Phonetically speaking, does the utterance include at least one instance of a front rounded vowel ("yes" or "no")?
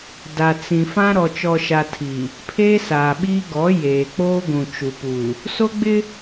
no